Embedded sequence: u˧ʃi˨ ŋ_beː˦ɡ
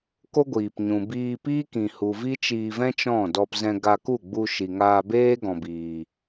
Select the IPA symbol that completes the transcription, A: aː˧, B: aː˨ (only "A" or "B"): A